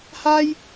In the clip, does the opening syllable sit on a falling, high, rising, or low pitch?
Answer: high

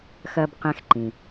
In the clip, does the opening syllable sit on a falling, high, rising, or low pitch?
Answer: low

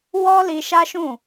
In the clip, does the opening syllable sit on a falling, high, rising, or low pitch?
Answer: high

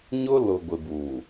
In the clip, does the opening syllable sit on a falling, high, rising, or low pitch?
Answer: high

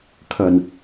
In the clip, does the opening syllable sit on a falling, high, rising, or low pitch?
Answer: low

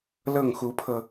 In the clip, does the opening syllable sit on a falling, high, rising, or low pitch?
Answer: falling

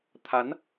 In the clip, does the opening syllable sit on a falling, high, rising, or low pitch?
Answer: rising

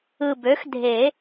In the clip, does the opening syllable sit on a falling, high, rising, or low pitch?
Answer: low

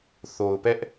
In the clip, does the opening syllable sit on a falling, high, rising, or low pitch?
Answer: low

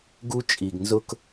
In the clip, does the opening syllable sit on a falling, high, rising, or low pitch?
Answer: high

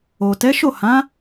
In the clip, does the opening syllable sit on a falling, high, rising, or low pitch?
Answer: low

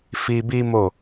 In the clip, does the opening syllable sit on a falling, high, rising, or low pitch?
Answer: high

